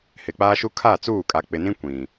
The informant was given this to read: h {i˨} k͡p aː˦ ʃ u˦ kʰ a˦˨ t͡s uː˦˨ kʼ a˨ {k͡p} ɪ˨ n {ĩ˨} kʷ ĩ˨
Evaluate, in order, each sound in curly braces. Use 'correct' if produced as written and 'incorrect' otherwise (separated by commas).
incorrect, correct, incorrect